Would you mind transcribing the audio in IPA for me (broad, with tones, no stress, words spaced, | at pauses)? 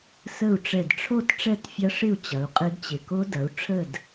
sə˥˨u̯ ʈ͡ʂɛ˧˩dʈ͡ʂʰo˥˨t ʈ͡ʂɛ˥˨tfʲɐ˦˥ʂɪ˥˨u̯ t͡ɕɐ˨˦u̯qʼɪ˦˥dt͡ɕɪ˧˩ ko˦˥dɐ˨˦u̯ ʈ͡ʂʰə˥˨d